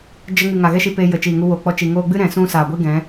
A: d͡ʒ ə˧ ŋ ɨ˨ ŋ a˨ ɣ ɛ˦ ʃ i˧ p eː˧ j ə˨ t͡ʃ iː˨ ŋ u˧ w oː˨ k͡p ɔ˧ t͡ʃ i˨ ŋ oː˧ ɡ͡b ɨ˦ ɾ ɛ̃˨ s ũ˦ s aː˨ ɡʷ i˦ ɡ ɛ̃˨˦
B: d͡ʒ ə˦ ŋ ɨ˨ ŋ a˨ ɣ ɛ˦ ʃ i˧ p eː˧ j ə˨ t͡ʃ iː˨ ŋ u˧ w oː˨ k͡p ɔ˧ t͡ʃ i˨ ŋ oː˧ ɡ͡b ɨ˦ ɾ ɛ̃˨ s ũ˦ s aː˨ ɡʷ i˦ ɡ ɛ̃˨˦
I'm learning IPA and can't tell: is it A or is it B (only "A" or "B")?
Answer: A